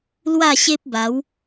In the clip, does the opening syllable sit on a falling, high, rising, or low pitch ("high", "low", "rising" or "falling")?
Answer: falling